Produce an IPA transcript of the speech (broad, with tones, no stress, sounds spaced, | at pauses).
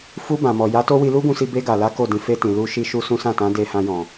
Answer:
f u˧ b ã˨ m ɔ˨ j a˨˦ t o˦ w i˧ l u˦ ɡ ũ˧ s i˧ b e˧ ɡ a˨ l a˨˦ k o˦˨ d ĩ˨˦ f e˧ t ĩ˨ l u˧ ʃ i˦ ʃ u˦ s ũ˦ s ã˦˨ t ã˨˦ d e˧ h ã˧ j ɔ̃˨